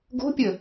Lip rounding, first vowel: rounded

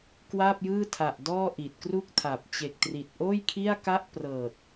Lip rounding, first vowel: unrounded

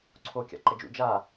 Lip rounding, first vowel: rounded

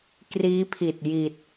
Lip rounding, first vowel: unrounded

